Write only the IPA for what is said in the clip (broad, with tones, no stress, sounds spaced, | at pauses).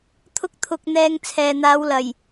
t̪ʰ ʊ˥ k̚ t̪ʰ ʊ˧ k̚ n̪ ɛː˧ ŋ t͡sʰ ɛː˨ n̪ aː˨˧ w l ɐ˨˩ j